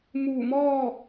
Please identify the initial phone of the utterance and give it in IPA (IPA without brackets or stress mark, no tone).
m